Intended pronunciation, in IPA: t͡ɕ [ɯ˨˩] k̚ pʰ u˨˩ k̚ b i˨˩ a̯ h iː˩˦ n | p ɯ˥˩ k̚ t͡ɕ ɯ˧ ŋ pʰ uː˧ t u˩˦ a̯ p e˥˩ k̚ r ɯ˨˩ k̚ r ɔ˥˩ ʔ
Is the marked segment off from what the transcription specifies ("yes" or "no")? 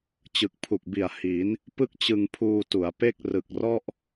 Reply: no